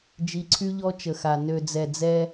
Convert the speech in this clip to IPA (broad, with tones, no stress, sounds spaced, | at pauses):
d͡ʒ i˨ ǀʰ y˦ ʎ ɔ˦ t͡ʃ ə˨ x a˨ n ø˨ d͡z ɛ˨ d͡z ɛ˦